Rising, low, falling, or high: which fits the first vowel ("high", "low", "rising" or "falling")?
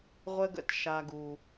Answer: high